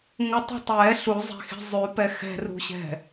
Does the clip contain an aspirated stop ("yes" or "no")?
no